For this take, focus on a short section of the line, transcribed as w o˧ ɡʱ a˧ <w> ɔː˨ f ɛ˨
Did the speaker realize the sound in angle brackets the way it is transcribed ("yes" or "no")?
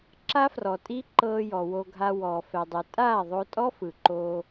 yes